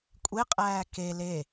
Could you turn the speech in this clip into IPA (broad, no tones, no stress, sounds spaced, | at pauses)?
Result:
kʷʼ e qʼ æː k e l e